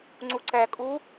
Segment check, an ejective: present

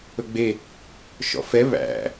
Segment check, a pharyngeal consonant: absent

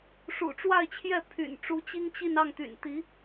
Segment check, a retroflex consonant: present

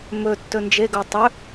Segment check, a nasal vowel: absent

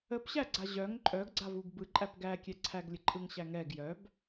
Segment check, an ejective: present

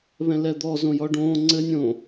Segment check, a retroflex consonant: present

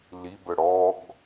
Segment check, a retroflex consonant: present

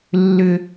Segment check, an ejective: absent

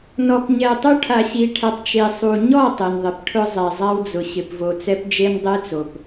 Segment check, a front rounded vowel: absent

